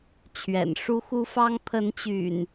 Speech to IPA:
t͡ɕʰɥɛ̰˨˩nʂu˦xu˦fɑ˦ŋ pʰə˨˦nt͡ɕy̰˨˩n

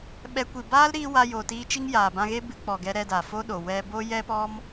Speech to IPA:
ɓɛ˧ kʷi˨baː˦lɾiː˧ wa˧jo˨ tiː˧t͡ʃi˦ŋjaː˨bã˧ ɣe˦bɨ˧ k͡pɔ˨ɡɛ˧ ɾɛ˧daː˨fo˦ɗo˨ wɛ˧bo˦jɛ˦pɔ˦m

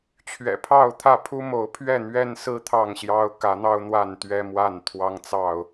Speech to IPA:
t͡ɕʰɥɛ̰˨˩pʰɑ˥˨ʊ̯t̪ʰä˥˨ pʰu˦mo˨˦ʊ̯ pʰɥɛ˥˨n̪ɥɛ˦nsɹ̩˦ t̪ʰɑ˥˨ŋɕjɑ˦ʊ̯ kä˨˦n̪ɑ˦ʊ̯ n̪wa˥˨n t̪ɥɛ˦mwa˥˨n t̪ʰwɑ˦ŋt͡sɑ˥˨ʊ̯

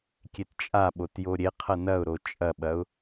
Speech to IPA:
kʲett͡ʃʼaɓot joɾʲeqʰɐ nɐʊ̯ɾo t͡ʃʼɐɓɐʊ̯

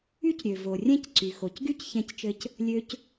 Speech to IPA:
y˥cɾʲø˩vo˩ rʲɛ̃˥cǀy˩ xo˩cɡy˥cçɛ̃˧ct͡ʃɘ˧c | lʲø˧c

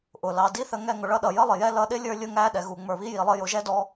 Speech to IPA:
ʔʊ˩lɑ˩di˥θə˧ ŋɛ˧ŋʊ˩ɭʌ˥ɗʌ˩ jə˥lˠɪ˩jɛ˥ lʌ˧ɗɪ˥lʲə˞˧ lʲʊ˧ŋæ˧ɗɛ˩ɣu˩ ŋ͡mə˞˩βi˥ji˩lˠə˧ jʊ˩ʒɛ˥dɔ˧

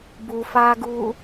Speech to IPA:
bufaːɡu

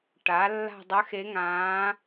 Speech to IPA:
ʈa˩˧ lːa̤˦˨dˤə˨˥xe˨˥ŋãː˨˥

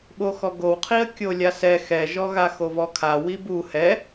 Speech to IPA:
ɓoxɔɡowqʰiə̯ kʲolʲasɛ xɛʒɔ ɣaxovɔkʰa wibu hɛ

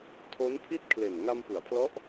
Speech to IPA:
tʰo˦˥npʰi˥˩t̚ kʰle˨˩n ŋa˧mpɯ˩˦a̯pʰlɔ˦˥ʔ

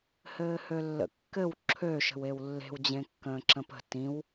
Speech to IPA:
hɘːhølːə̰kːɘw ǁʰø ʃə̤wewlːe̤w d͡ʑẽkːə̃ːǁə̃pə̤ tĩw

